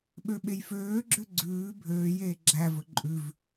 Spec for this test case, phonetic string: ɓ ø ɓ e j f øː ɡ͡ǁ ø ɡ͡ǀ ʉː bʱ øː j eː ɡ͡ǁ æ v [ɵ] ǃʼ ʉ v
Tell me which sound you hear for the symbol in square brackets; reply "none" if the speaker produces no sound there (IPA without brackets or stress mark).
ɵ